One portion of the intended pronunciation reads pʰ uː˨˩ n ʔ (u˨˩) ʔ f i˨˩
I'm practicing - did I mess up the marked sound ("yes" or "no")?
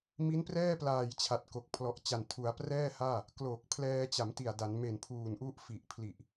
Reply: yes